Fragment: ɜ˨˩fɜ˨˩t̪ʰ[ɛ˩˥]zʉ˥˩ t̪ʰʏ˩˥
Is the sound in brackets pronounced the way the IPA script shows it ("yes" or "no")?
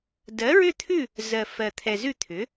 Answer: no